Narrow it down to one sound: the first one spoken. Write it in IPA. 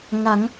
ŋ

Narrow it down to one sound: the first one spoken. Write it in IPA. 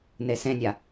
n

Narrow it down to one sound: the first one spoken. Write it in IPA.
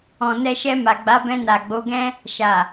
ɔ̃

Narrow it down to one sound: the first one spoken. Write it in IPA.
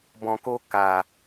b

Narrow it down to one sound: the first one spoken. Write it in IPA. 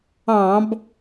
ɑ̃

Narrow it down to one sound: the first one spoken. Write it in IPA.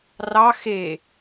r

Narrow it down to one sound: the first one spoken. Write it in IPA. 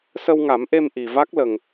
s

